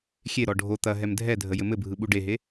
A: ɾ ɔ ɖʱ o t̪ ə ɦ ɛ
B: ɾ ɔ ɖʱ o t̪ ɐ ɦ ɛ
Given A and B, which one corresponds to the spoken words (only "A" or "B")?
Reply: B